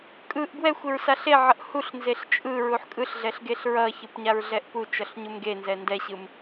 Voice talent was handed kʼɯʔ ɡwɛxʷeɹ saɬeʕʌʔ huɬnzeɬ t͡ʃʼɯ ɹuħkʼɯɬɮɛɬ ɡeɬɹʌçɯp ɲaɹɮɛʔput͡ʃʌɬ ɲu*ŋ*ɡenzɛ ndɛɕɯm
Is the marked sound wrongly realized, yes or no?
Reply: yes